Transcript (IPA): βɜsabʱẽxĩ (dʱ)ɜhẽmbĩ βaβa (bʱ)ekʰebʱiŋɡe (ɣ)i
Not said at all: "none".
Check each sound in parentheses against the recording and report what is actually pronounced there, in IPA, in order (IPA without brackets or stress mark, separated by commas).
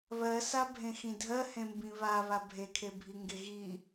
dʱ, bʱ, ɣ